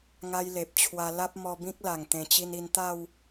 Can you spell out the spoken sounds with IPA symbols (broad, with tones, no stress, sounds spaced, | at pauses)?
ŋ a˦ j l e˨ p̚ t͡ɕʰ w a˧ l a˦ p̚ m ɔ˧ b ĩ˦ k̚ l a˨˩ ŋ t̪ ẽ˨˩ t͡ɕ i˧ n i˧ n t̪ a˥˧ w